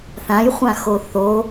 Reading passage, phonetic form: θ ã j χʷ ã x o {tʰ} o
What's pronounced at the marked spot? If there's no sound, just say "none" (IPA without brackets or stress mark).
θ